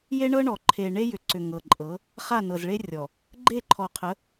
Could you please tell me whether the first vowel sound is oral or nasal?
oral